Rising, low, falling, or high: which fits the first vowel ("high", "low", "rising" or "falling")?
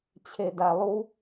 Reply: low